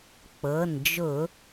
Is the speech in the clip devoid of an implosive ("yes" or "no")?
yes